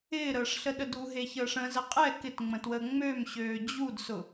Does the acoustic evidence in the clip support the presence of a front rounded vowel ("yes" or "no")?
yes